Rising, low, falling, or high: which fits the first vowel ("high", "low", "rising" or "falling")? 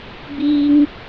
high